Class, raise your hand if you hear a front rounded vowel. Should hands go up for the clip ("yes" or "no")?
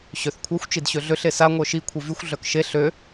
yes